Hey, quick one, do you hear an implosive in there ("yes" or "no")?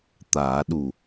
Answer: yes